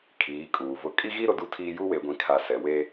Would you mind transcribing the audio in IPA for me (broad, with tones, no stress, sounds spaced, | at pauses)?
kʰ iː˨˦ kʼ uː˨ v ʊ˦ kʼ i˦ ɣ i˦ ɾ ʊ˨ d u˦ tʰ iː˦ j u˦ w e˨ ɡʷ ĩ˨ kʰ a˨ s ɛ˨ w e˦